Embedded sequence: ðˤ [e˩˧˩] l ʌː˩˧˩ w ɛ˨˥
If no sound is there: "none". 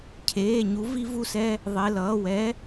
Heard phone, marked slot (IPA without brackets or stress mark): e˩˧˩